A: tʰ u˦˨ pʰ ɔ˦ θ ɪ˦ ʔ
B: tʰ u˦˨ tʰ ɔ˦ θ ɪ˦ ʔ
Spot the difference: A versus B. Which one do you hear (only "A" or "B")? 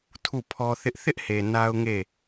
A